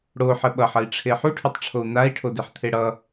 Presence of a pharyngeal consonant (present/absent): present